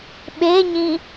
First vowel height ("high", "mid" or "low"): mid